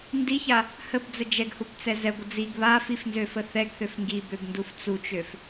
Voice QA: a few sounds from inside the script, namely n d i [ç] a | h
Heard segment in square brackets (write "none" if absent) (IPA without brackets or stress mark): ç